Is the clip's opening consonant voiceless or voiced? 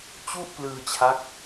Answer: voiceless